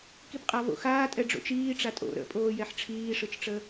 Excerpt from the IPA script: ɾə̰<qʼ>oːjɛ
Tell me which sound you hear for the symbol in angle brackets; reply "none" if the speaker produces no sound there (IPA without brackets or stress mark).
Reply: pʼ